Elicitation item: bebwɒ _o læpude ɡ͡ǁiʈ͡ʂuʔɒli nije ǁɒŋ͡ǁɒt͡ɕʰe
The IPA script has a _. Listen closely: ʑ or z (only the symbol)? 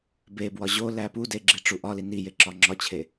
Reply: ʑ